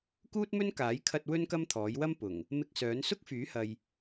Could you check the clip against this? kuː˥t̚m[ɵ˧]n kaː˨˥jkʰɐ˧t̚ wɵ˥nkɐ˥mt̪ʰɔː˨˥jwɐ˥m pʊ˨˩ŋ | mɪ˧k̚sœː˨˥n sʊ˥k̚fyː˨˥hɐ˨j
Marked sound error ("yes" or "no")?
yes